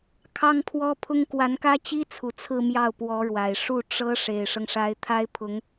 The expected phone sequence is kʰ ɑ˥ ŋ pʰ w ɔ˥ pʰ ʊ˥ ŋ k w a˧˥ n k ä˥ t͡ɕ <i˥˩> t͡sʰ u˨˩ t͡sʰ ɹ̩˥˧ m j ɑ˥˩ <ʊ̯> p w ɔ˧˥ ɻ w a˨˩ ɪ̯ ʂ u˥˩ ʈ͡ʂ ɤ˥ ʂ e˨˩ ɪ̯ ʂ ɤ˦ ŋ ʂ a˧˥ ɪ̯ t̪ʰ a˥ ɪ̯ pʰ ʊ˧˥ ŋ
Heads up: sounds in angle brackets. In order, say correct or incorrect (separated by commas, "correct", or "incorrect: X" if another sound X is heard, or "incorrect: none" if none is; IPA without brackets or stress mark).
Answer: incorrect: i˥, correct